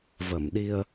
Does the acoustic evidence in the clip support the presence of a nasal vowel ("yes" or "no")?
no